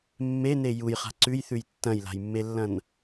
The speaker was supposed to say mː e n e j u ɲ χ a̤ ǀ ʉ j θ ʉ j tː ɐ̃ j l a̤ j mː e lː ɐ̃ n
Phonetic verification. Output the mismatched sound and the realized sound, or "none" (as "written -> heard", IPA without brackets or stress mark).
ɲ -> j